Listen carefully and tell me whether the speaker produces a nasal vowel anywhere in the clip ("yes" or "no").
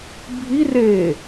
no